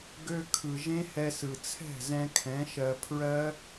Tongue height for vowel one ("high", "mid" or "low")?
mid